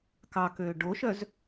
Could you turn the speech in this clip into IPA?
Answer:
k ɑ k øː ɖ o ʃ œ z

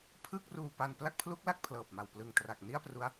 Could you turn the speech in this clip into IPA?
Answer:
pʰ ɯ˥˩ k̚ r uː˧ p a˧ n p l a˥˩ k̚ pʰ l u˦˥ k̚ l a˥˩ k̚ pʰ l ɤː˨˩ p̚ m a˨˩ w p l ɯ˨˩ ŋ t r a˨˩ k̚ n i˥˩ a̯ p r u˦˥ a̯

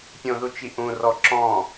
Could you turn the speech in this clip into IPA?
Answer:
pʲ õ ð u t͡ʃ i ʔ ũ r ɔ ǁ ɔ̃

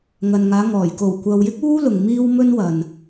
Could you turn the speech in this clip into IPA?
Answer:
ŋ ɐ˨ n ŋ aː˨˧ ŋ ɔː˨˩ j k o˨˩ w kʷ ɐ˨ w j ɪ˥ k̚ uː˥ l ʊ˨ ŋ m iː˥ w m ɵ˥ n w ɐ˨ n

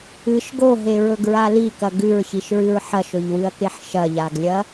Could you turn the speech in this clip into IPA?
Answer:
ɨ ʃ ɡ o ɦ e ɹ ɵ ɡ ɹ a l i k ɐ ɡ ʉ ɹ ç i ʃ ɹ ɨ ɹ ħ ɐ ʃ ɵ ʎ w ɨ ɐ̯ k e ħ ʃ ɐ ʎ a ɡ lʲ ɐ

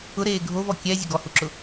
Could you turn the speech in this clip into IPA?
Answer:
ʊ ɾ eː ɡʱ o v ɔ kʲ ɛ zʲ ʊ ɡ ɔ h u ǁ ʊ

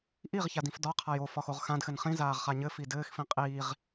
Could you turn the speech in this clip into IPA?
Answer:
ʔ i ʁ ç a d ĩ f d ɒ qʰ a j o f ɒ x o ʁ x ã d x ɘ n χ ĩ z aː ʁ χ a ɲ ɘ f i d ɘː x f ĩ qʼ iː ʁ

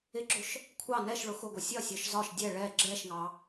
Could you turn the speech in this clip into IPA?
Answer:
ɪ ɡ͡ǁ ʊ ʃ | kʷʰ ɑ n ɛ ʃ ɭ ʊ x ʊ ɡʷ ʌ sʲ ɒ sʲ ɒ ʃ z ɒ ʃ dʲ ɛ ɭ ɛ ɡ͡ǁ ɛ ʃ ŋ ɑ

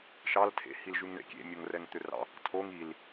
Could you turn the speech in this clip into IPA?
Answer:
ʃ ɑ l tʰ ḛ h i l ʒ ʉ ŋ ɳ ḛ kʲ ḛ mʲ o ŋ r ɛ ŋ t̪ ø r ɑ̰ | tʰ o ŋ i l

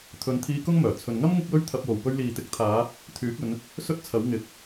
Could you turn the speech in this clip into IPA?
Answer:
t̪ʰ ɵ˨˧ n t̪ʰ iː˧ k ʊ˥ ŋ m œː˨˩ t͡sʰ ɵ˨ n ŋ ɐ˥ m ŋ ɪ˥ k̚ w ɵ˥ ɥ t̪ʰ ɐ˧ p̚ w o˨ w p ɵ˧ ɥ l iː˨ t̪ ɪ˨˥ k̚ t̪ʰ aː˨˧ | t̪ʰ yː˨˥ k̚ ɵ˨˧ n | s ɵ˥ t̚ t͡sʰ ɐ˨˥ w ŋ ɪ˨˥ k̚

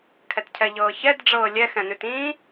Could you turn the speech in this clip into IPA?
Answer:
kʰ ɛ t cʰ ɛ ʎ ɤː ç ɛ d ɖ͡ʐ ɤː lʲ ɛ x ɛ̃ n ʉ t ĩː

